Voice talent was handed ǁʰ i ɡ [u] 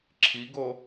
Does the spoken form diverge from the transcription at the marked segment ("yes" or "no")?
yes